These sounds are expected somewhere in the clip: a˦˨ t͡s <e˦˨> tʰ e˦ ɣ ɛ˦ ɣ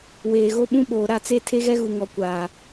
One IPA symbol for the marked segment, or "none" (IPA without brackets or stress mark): e˦˨